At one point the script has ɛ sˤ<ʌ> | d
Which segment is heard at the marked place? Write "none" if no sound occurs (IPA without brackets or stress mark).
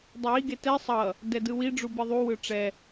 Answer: ʌ